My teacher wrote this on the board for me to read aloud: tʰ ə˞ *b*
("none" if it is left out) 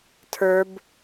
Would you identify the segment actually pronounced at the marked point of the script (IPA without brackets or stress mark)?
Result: b